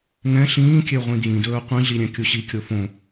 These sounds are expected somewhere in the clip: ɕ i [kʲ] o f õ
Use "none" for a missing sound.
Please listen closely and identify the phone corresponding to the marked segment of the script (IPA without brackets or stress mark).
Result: kʲ